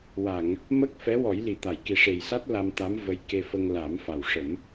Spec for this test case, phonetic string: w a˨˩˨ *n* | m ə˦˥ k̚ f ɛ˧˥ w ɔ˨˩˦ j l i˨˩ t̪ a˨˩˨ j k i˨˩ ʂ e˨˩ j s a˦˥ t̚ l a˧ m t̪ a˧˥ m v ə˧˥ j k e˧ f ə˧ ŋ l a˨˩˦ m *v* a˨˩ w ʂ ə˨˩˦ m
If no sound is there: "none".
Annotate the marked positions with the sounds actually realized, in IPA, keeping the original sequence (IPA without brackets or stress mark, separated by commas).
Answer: ŋ, f